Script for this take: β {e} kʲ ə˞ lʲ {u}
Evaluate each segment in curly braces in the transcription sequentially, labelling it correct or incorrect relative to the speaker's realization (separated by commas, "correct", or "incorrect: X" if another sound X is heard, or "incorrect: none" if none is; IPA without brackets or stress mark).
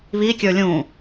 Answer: incorrect: i, incorrect: ũ